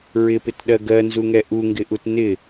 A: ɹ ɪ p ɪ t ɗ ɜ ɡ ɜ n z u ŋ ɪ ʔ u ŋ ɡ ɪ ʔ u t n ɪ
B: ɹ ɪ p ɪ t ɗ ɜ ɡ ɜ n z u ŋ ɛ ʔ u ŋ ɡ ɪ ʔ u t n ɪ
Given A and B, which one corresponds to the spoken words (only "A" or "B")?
B